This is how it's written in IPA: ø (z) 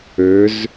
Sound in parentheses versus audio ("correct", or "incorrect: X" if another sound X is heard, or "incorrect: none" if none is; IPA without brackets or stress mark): correct